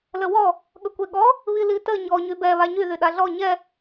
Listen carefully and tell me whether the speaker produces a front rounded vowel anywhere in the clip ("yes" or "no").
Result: yes